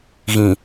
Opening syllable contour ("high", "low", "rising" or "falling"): low